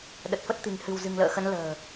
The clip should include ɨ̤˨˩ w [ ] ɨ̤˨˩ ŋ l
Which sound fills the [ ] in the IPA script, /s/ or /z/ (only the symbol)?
z